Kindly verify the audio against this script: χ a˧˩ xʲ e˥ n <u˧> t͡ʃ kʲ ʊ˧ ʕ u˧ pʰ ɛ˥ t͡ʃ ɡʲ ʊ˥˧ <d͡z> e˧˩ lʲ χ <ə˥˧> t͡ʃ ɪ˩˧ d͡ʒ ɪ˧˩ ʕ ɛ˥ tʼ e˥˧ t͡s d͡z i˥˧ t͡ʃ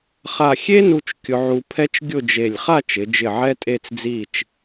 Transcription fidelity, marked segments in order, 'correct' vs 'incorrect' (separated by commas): correct, incorrect, incorrect